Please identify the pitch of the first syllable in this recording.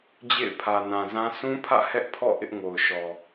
falling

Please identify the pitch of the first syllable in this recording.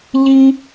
high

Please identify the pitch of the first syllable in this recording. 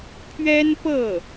high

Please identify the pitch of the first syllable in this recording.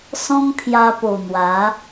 high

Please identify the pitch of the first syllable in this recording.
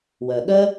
low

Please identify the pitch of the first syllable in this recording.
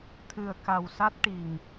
low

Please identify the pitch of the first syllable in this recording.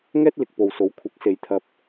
high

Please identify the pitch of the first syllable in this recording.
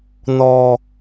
low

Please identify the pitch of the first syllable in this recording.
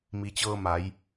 low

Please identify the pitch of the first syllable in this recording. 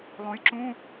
rising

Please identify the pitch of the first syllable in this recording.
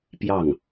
falling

